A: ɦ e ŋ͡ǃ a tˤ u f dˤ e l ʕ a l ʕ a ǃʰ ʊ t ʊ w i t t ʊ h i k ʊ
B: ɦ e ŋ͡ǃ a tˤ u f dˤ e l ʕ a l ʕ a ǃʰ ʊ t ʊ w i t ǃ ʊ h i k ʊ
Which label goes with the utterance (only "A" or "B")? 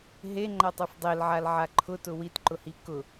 B